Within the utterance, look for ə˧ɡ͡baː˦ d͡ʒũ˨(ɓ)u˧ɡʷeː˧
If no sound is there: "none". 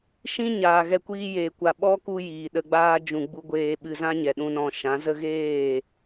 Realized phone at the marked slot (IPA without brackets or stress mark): ɡ͡b